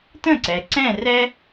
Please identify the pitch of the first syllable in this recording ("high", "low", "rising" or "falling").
falling